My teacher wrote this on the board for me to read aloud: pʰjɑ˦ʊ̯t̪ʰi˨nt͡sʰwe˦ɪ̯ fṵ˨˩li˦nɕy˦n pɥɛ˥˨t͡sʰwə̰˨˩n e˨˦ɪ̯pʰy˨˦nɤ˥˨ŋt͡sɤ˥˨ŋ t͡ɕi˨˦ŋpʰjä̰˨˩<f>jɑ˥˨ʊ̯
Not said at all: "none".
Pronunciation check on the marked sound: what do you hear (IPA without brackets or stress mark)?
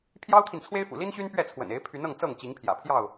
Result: pʰ